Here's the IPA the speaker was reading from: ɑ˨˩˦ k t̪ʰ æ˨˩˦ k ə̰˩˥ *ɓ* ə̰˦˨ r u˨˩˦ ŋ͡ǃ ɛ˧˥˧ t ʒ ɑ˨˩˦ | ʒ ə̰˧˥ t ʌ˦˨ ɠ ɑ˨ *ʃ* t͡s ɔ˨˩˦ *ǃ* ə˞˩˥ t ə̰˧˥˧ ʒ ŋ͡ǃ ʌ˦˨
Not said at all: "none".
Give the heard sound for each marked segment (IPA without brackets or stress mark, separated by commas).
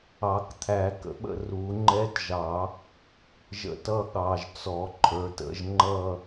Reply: ɓ, ʒ, ǃʰ